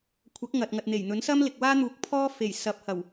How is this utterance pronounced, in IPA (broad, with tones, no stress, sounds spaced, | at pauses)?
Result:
kʷʰ ɐ˨˥ k̚ ŋ ɐ˨ t̚ ŋ ɐ˨ t̚ n̪ e˨˩ j n̪ ɵ˨˥ n s ɐ˥ m l ɪ˨ k̚ w aː˥ n̪ uː˨˥ k̚ pʰ ɔː˥ f e˨˩ j s ɐ˨˥ p̚ h ɐ˨˩ w